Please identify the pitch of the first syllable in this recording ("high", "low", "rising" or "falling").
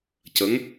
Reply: rising